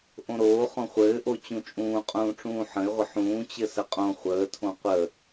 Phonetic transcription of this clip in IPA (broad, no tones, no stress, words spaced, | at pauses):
ʔõɾoː χõχʷɘːʔo t͡ɕũt͡ʃʼũːqʼũːʈ͡ʂũː ħə̃ɪ̯ʁʷə ħũːt͡ɕɘ səqʼõ χʷəːtʰõ qʷə